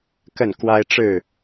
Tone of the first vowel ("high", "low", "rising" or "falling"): falling